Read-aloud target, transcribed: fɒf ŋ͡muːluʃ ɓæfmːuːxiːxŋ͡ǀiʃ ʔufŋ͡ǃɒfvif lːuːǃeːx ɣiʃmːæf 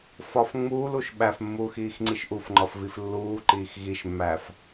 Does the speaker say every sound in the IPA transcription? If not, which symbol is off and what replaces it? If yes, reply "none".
eː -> iː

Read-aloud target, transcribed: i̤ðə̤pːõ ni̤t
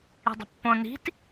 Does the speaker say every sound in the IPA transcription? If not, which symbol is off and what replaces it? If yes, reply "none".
ð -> dˤ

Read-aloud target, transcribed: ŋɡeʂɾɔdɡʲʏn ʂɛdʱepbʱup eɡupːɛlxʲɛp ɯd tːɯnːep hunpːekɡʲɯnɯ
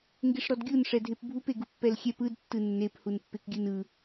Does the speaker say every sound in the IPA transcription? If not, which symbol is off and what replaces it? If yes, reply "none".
ʏ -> u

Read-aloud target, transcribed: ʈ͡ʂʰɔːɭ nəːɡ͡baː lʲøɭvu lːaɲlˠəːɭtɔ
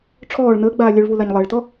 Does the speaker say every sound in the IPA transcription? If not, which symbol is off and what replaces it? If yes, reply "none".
lː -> l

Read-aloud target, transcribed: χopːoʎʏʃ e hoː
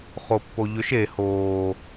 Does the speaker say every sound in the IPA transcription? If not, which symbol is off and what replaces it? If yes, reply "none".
none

